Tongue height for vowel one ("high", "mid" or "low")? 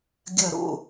low